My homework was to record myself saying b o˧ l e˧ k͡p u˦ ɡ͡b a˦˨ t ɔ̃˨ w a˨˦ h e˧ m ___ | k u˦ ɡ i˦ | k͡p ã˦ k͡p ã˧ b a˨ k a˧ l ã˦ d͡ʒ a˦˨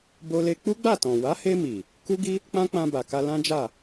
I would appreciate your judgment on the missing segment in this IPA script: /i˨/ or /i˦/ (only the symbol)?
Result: i˨